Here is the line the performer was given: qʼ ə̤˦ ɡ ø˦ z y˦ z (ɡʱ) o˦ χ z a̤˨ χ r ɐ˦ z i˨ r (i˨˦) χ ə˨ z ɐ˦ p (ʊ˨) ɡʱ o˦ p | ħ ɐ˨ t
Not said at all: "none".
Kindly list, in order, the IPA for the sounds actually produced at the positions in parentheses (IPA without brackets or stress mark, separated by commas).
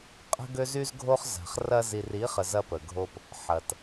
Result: ɡʱ, i˨˦, ə˨